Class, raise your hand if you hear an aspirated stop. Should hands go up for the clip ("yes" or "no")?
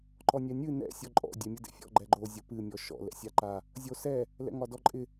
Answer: no